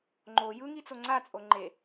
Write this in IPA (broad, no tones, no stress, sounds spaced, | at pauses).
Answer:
ŋ͡ǃ o j ɯ ŋ i t͡s o ŋ͡ǀ a t͡sʼ o ŋ͡ǃ e